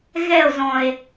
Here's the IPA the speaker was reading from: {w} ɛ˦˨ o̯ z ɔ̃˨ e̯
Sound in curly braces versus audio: incorrect: ɣ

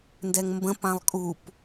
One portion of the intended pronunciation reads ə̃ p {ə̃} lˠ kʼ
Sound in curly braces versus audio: incorrect: ã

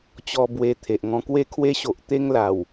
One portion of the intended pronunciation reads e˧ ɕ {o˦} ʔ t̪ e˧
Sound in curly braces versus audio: incorrect: o˨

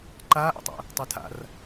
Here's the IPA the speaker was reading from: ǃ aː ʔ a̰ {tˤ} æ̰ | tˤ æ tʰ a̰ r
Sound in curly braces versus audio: correct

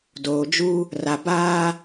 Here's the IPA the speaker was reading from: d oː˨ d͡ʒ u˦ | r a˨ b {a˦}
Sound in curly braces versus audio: incorrect: aː˦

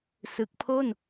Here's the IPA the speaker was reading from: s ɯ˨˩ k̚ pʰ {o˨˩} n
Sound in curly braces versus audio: incorrect: o˥˩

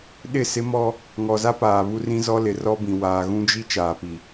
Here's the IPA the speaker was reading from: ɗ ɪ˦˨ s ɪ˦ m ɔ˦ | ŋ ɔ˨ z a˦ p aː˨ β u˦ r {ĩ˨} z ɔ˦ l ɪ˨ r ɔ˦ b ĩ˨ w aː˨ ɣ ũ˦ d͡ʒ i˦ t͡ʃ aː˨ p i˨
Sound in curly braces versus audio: incorrect: ĩ˦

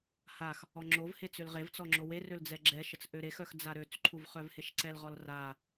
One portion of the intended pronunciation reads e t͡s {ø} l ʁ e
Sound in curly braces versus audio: correct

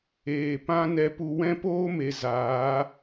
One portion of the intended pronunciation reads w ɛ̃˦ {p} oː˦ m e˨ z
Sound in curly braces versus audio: correct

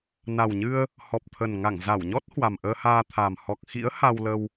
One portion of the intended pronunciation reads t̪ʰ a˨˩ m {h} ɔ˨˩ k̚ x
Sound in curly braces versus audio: correct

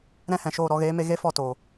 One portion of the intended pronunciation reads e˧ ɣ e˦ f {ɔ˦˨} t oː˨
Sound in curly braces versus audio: correct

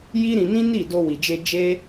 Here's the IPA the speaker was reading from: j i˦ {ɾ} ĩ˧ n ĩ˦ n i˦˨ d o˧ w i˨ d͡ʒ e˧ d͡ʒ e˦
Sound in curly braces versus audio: correct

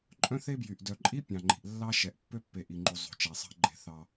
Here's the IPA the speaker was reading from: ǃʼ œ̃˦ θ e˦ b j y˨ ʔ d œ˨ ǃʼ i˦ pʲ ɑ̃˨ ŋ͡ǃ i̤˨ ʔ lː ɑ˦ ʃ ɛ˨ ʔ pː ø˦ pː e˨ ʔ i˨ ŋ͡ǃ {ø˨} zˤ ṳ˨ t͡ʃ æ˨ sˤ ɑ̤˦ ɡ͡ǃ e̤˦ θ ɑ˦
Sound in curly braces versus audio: incorrect: u˨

